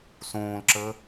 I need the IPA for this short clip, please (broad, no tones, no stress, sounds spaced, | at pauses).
s õː l ǁ əː